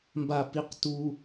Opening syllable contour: low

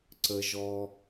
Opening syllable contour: low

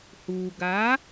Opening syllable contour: low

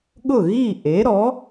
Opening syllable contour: falling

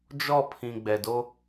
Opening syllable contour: falling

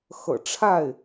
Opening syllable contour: low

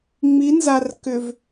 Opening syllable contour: rising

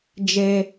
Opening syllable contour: high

